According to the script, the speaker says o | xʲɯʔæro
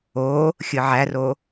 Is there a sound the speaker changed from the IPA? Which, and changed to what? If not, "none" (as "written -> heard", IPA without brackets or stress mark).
ʔ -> ʕ